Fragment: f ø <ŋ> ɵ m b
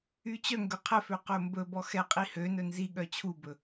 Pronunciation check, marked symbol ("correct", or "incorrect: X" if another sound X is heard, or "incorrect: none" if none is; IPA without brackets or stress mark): incorrect: q